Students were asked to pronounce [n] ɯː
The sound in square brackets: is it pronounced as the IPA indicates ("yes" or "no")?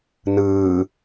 yes